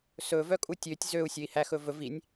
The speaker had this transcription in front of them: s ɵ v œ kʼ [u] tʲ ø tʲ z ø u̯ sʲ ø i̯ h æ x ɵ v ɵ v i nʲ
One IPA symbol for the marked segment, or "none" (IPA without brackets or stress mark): u